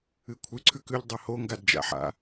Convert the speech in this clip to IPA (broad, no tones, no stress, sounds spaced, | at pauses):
ɨ kʷʰ ɨ ǀʰ ʉ k ʉ ʎ dˤ ɐ h o ŋ ɡ a d d͡ʒ a̰ ħ a̰